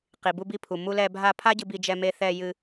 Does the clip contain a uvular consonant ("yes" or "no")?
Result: yes